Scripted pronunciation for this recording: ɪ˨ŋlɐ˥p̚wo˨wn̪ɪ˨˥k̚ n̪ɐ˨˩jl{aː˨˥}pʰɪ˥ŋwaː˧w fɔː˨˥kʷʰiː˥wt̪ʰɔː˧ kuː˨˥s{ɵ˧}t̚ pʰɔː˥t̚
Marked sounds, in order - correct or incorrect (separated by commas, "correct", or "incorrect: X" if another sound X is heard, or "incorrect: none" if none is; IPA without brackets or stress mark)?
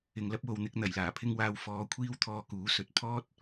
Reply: incorrect: aː˨˩, incorrect: ɵ˨